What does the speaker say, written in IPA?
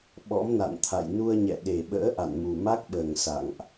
ɓ ɔ̰˧˥ m n a̰˧˨ n t̪ʰ a̰˧˨ j n u˧ ə̯ ɲ ɛ̰˧˨ ɗ e˨˩ ɓ ə̰ː˧˥ ʔ a̰˧˨ n m u˨˩ m a˦˥ k̚ ɓ əː˨˩ ŋ s a̰˧˨ ŋ ʔ

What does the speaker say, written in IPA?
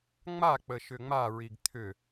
ŋ͡m a k͡p ə ʃ ʏ ŋ͡m a ɹ i ɡ t̪ʰ ʏ

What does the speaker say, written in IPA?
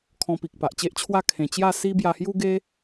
kʰ ɔ̃˧ p i˨ k̚ p a˨ ʔ t͡ɕ e˦ ʔ t͡ɕʰ w a˥˧ kʰ ẽ˧ t͡ɕ j a˥˧ s i˦ b j a˧ h j u˦ ɡ e˦

